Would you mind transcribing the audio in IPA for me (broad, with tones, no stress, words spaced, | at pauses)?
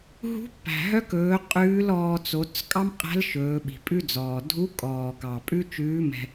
ɦṳ˧˥pːæ̤˩ɦœ˧˥kɵː˩˧ qʼʉː˧˥lɔː˧ t͡so˩˧t͡s kʼɑ˥mqʼæ̤˧˥l ʃɵː˩˧ɓi̤˩pʼʉ˥d͡zɔː˩ dʱu˧˥kʼɔː˩ kɑ˩ pʼʉ˥t͡ʃʉː˧˥mɛ̤˧